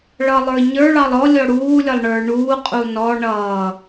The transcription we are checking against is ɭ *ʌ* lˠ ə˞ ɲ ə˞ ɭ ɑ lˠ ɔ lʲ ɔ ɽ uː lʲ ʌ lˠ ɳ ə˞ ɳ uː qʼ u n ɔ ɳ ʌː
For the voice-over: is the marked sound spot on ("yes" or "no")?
yes